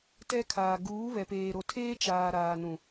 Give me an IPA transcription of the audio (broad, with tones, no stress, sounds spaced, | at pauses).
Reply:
t ɛ˦ kʰ aː˨ ɡ uː˨˦ β ɛ˨ p eː˨ ɾ o˨ tʰ eː˦ t͡ʃ aː˨ ɾ aː˨ n ũ˨